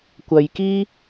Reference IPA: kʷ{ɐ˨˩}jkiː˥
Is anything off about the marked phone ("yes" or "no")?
yes